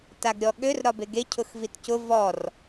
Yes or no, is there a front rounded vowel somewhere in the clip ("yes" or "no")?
yes